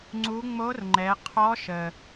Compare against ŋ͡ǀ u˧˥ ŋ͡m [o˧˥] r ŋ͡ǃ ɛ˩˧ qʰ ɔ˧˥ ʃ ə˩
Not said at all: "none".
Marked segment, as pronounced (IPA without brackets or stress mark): o˧˥